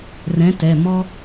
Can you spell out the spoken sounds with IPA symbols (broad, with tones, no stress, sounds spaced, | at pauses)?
r ɛ̃˨˥ t ɛ˩˧˩ m ɔ˥